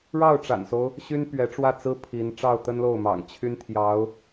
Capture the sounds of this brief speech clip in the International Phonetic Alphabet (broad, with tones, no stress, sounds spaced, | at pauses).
ɻ ɑ˥˩ ʊ̯ ʈ͡ʂ a̰˨˩ n s o˦ ʊ̯ | ɕ y˥ n p ɥ ɛ˧˥ ʈ͡ʂ w ä˥˩ t͡s ɹ̩˥ pʰ i˧˥ n ʈ͡ʂ ɑ˥˩ ʊ̯ t̪ ə˥ n l o˥˩ ʊ̯ m ɑ̰˨˩ ŋ t͡ɕʰ y˥ n t̪ʰ j ɑ˧˥ ʊ̯